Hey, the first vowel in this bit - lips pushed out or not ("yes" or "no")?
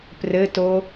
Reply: no